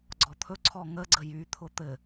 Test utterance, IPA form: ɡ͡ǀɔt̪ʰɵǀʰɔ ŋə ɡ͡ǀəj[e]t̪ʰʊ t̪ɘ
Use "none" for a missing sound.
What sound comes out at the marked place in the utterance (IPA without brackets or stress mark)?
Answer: y